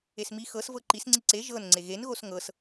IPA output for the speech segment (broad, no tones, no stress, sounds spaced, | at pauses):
e s m i x ɤ s v ɤ ǃ i s ŋ͡ǀ i ǀ e ʒ ɤ n ŋ͡ǀ e ɣ e n ɣ o s ŋ ɤ s